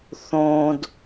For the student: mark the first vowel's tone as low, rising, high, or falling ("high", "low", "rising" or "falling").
low